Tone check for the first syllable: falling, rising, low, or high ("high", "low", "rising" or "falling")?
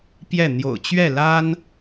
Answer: falling